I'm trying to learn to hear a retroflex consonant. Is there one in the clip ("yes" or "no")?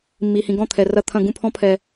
no